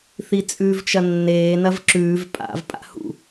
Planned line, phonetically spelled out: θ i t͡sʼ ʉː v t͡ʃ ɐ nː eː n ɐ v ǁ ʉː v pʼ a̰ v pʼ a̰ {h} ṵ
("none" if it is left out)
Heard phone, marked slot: h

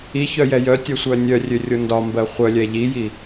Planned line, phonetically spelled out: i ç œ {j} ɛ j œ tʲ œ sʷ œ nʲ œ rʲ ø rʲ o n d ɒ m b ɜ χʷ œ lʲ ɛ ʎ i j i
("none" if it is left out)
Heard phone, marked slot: j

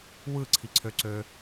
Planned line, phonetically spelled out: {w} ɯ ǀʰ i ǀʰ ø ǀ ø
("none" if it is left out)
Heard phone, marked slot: w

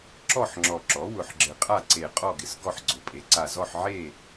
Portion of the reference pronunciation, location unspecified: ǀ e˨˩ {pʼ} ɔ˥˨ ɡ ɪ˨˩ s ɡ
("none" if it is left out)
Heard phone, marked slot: qʼ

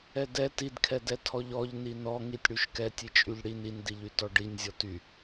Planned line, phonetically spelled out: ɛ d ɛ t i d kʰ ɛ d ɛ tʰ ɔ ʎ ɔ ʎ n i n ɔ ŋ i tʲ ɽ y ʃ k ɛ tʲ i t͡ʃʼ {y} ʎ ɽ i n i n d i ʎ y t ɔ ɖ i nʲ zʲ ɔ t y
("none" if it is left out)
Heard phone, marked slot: y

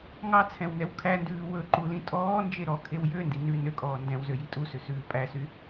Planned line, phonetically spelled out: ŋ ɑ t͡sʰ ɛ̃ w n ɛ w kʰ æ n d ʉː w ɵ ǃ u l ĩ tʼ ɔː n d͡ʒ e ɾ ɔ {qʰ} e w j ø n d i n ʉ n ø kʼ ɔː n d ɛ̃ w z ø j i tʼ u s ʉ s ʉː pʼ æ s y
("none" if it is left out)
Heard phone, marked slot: kʰ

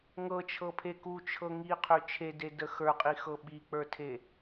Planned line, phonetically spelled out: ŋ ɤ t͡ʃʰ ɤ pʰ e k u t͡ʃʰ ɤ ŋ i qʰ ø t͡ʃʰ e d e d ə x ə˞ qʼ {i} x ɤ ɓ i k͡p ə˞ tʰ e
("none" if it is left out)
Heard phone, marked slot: i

